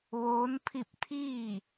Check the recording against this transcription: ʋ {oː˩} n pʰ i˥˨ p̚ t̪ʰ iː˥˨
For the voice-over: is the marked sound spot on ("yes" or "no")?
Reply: no